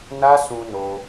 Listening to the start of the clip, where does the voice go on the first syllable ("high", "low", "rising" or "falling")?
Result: high